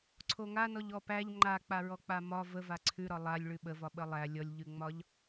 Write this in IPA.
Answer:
ǀʰ o ŋ a n ɔ ʎ ɔ p æ ʎ ŋ͡ǃ a k͡p a ɹ ɔ k͡p a m ɒ v ə v a ǀʰ ʉ ɾ ɒ lˠ a lʲ ɭ ʉ ɓ ə v ɒ ɓ ə lˠ æ lʲ ɔ lʲ ʎ ʉ ŋ͡m ɒ ʎ

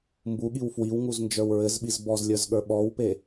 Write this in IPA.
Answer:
m b u ɠ i w f w i w ŋ u z n d͡ʒ ə˞ w ɹ ɘ z ɓ i z b ɔ z lʲ ə˞ z ɠ ə˞ ɓ ɔ w p e

